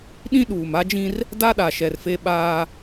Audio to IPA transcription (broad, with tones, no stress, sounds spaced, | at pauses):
ɗ ĩ˦ ɗ uː˨ m a˦ d͡ʒ ĩ˦ r | d a˦ ɗ a˨ ʃ ɛ˨ r f e˦ ɓ aː˦